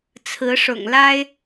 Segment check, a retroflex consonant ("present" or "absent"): present